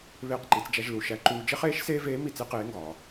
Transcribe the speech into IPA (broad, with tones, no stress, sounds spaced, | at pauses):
β eː˧ q ǃ i˩˧ t͡s d͡ʒ æ˧ ʒ l u˩ ʃ æ˧ ǃ uː˧ d͡ʒ e˥ χ eː˧˥ ʃ s eː˥ v eː˧˥ m i˧ t͡s e˥ q eː˧˥ ŋ ɡ ɒː˩